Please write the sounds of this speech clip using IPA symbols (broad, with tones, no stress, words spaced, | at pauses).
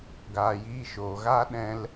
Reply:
ɡaː˨jiː˧ʃoː˨ ɣaː˦ɗɛ̃˧l